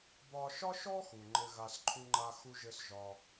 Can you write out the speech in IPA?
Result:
bɒ˧ʃɒ˥ʃɔ˥ xu˩ ŋ͡ǃɘ˧ɣa˧s ǃʰu˥ŋ͡ǃa˥xu˥ʒɘ˥s ʒɒ˧

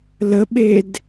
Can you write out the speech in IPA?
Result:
ləɓed

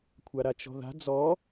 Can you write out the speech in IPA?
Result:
kʷʰaɾat͡ʃɔ̤ða̤ d͡zɔ

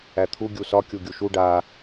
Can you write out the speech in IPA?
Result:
æt̪ʰu ɡʲusɒ kʲuɡʲuʃu ɖa

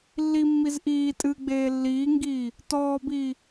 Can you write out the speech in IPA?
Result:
lːimːiz ʔiː tʼɨɡ͡beː lːiːŋɡiː | tɔːbiː

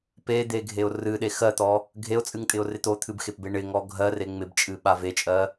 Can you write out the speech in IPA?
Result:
ped̪eɡʱeʊ̯ rɨɗe xɜt̪ɔ | ɡʱeʊ̯t͡sʼɨŋtʼɪʊ̯rɪ t̪ot̪ʰɨbxepbe ɳɪŋɔ ɡʱɜre ŋ͡mɪbt͡ʃʼɨɓa vet͡ʃʼɜ

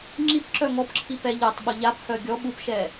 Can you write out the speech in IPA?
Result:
ŋ͡ǁipǁœ ŋɔpǁʰipɛ ʎœtˤɓʊ ʎaphœ ɡʲɔ ɓupʃɛ

